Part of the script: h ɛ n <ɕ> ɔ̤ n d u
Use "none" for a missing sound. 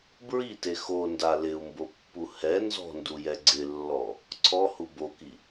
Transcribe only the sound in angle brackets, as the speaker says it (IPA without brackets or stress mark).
z